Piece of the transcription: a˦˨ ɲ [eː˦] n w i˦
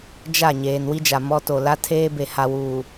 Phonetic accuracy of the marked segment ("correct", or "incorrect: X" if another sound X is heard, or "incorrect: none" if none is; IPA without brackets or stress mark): incorrect: eː˨